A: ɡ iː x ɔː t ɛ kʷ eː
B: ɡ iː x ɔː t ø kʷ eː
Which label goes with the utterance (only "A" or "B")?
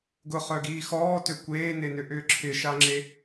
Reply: B